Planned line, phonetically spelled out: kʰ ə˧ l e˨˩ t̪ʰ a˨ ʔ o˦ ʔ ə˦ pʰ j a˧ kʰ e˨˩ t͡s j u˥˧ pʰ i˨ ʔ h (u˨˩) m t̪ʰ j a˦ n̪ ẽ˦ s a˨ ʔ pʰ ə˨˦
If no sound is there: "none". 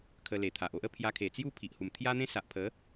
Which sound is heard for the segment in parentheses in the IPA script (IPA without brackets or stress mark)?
u˨˩